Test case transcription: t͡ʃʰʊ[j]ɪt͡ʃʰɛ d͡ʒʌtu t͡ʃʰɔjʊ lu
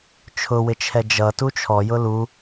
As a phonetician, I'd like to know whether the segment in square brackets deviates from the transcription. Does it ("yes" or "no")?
yes